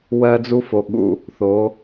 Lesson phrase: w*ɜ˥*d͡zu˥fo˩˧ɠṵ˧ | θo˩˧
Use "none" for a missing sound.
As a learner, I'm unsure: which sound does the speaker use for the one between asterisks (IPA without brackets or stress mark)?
ɜ˥